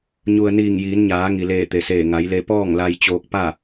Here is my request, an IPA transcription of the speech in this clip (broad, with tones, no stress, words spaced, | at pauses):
ɲu˩ə̯ niː˧˩ŋjiː˩˧nɲaː˩˧ ŋi˩leː˧˩ t̪e˩seː˧˩ ŋa˩˧jle˧ pɔː˥˨ŋla˧j t͡ɕoː˧k̚pa˥˨